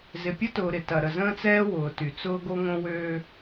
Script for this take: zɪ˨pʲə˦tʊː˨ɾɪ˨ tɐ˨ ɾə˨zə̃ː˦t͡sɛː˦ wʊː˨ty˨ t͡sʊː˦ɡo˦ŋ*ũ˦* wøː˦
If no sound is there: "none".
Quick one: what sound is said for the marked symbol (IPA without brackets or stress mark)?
õ˦